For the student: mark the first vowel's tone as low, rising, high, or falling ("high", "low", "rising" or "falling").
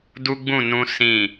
high